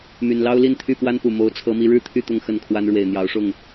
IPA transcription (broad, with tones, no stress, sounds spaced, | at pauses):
m y˨˩ n l ɑ˦ ʊ̯ l i˥˨ n t̪ʰ y˥˨ p w a˦ n p u˨˩ m o˨˦ ʊ̯ t͡sʰ ɤ˨˦ m i˨˦ ɻ ɻ̩˥˨ t̪ʰ y˥˨ t̪ ʊ˥˨ ŋ x ə˥˨ n kʰ w a˦ n ɻ w e˨˩ ɪ̯ n̪ j ɑ˨˦ ʊ̯ ʂ ʊ˥˨ ŋ